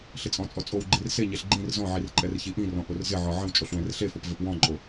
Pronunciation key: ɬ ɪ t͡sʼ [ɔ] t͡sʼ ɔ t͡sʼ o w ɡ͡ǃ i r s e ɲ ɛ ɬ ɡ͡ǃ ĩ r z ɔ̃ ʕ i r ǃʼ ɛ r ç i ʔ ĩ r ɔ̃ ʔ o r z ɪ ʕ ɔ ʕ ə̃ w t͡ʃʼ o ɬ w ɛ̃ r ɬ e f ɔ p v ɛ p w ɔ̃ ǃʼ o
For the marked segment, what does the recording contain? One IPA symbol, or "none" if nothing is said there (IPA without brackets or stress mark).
ɔ̃